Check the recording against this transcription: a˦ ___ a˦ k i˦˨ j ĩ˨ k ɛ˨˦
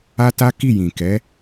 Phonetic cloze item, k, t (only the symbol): t